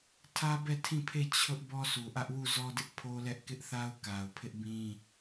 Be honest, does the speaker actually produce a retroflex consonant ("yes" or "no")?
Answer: no